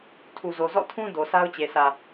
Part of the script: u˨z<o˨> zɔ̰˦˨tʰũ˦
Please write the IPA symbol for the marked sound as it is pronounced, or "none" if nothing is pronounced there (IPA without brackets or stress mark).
o˨